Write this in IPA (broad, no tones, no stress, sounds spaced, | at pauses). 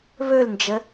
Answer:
β ɵ l n d͡ʒ ə